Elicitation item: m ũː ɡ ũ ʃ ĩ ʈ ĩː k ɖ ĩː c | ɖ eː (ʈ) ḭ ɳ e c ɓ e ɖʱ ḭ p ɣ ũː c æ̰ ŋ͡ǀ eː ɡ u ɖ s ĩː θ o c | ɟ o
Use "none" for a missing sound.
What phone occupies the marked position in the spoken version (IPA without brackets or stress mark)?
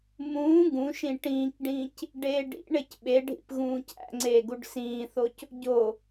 ɖ